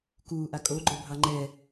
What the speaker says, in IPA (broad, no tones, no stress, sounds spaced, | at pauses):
k uː ʔ a kʼ o ɡ͡ǃ o bʱ ɑ ŋ͡ǃ ɛ